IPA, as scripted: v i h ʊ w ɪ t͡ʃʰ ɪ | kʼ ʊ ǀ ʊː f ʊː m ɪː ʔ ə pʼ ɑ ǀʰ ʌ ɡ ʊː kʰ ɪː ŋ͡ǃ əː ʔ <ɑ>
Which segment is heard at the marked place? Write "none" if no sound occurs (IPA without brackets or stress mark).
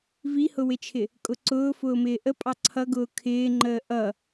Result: ʌ